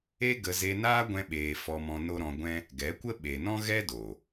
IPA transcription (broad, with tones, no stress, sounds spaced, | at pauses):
e˦ ɡ ə˧ z e˧ n aː˦ ɡʷ ɛ̃˧ ɓ eː˨ f ɔ˧ m ɔ̃˧ n o˦ ɾ ɔ̃˧ ɡʷ ɛ̃˦ | ɡ ɛ˨˦ kʷ ə˦ ɓ e˨ n ɔ̃˦ ɣ ɛ˦ d o˨